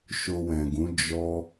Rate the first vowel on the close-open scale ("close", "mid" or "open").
mid